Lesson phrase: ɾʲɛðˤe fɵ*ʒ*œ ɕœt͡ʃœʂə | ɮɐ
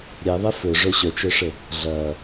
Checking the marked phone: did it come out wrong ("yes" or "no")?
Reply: yes